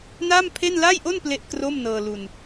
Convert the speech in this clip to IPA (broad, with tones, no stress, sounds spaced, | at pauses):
n a˥˩ m pʰ e˥˩ n l a˥˩ j ʔ o˥˩ n p l e˥˩ ʔ k r o˥˩ m n ɤː˧ l u˧ n